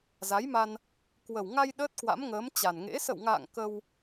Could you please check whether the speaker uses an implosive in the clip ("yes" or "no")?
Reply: yes